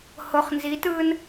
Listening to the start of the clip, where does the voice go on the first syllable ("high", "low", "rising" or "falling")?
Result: low